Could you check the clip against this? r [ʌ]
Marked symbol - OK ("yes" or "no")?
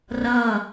yes